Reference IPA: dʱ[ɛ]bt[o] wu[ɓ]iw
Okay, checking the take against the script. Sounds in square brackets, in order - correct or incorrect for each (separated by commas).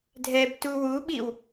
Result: correct, incorrect, correct